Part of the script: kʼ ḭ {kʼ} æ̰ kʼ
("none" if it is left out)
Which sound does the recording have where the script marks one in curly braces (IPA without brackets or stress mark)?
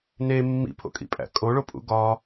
pʼ